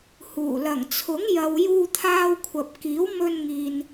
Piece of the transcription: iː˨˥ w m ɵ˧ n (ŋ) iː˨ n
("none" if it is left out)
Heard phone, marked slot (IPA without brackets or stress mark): ŋ